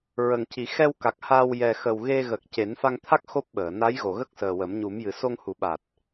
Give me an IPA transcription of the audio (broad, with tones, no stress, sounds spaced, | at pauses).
ɹ ə˨˩ ŋ c i˨˩˦ x ɛ˧ w k a˨˩ k̚ h a˧ w j ɛ˨˩ x ə˨˩ w ɣ e˧ ɣ ə˨˩ k̚ c e˨˩˦ n f a˧ ŋ t̪ʰ a˦˥ k̚ x o˦˥ p̚ ɓ əː˨˩˨ n a˧˥ j ɣ o˨˩˨ ɣ ə˦˥ k̚ s əː˨˩ w ə˨˩˦ m ɲ u˨˩˦ m j ɨ˨˩˦ s o˧ ŋ h u˨˩˦ ɓ a˨˩ t̚